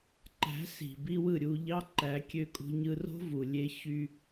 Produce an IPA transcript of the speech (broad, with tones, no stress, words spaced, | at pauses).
ǃæ̤˨˦si̤˨bi˧ wɯ˦˨ɾʲu˧ʎɑ˦ ǃæ˨˦kʲø˧kʼṳ˧ɲɯ˧ ro̤˦vu˨lʲe˧ çy˧